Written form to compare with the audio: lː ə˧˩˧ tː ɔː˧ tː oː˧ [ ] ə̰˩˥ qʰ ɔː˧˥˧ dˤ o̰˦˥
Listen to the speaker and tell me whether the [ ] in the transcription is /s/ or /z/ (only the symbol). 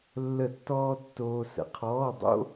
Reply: s